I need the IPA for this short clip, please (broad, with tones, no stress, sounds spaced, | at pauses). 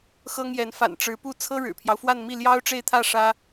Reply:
x ɤ˥ ŋ j ɛ˧˥ n f a̰˨˩ n ʈ͡ʂ ɻ̩˧˥ p u˥˩ t͡sʰ ɤ˥ ɻ ɻ̩˨˩ pʰ j ɑ˦ ʊ̯ f w a˥˧ n m i˥˩ l j ɑ˥ ʊ̯ ʈ͡ʂ e˥˧ ɪ̯ t̪ʰ ä˥˩ ʂ ä˥